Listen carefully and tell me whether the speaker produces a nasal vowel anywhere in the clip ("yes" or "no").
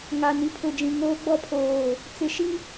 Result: yes